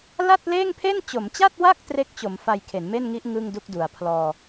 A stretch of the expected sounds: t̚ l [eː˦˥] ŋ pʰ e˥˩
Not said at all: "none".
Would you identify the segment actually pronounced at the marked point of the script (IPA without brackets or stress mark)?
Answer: eː˥˩